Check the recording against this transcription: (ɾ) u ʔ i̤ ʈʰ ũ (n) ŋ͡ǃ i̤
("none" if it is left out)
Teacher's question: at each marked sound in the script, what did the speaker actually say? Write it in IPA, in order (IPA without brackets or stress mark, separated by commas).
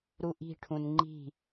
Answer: ɾ, n